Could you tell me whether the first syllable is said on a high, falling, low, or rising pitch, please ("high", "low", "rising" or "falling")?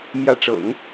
rising